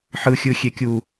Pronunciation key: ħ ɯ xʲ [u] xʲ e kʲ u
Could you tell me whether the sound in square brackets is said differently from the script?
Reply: yes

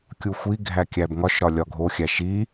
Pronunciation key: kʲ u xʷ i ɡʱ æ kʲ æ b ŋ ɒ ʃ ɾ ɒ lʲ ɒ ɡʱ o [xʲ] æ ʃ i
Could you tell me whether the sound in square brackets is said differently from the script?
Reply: no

